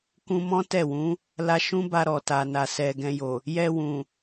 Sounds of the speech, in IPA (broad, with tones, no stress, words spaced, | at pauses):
kũ˧mɔ̃˦ tɛ˦˨wũ˨˦ | la˧ʃũ˦ba˧ ɾɔ˨ta˨na˨ sɛ˨ ɡɛ̃˧jo˨ | jɛ˧wũ˨